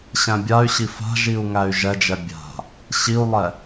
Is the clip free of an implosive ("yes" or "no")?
yes